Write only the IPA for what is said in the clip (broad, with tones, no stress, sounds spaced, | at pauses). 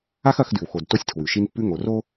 a˦ x ɐ˨˦ x d ʉ˨ w x o˨ d t o˦ sʲ tʰ w ʉ˨ ʃ i˦ n pː ʉ˦ ŋ o˨ r o˦